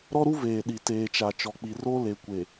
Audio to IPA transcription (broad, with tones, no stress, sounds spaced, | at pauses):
ɾ ɔ˦ ɾ u˦ v eː˨ ɗ i˨ t eː˨ t͡ʃ a˨ t͡ʃ ɔ˨ k͡p i˨ r o˦ l e˨ kʷ e˨